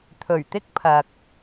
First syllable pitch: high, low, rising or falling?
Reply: low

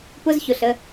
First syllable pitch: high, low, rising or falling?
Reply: high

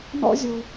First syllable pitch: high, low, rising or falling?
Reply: high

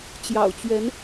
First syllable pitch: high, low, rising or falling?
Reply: low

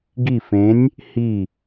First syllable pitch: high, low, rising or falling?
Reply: falling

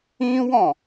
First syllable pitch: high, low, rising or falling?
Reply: high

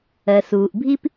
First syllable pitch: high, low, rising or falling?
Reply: low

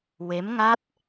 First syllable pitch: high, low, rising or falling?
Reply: rising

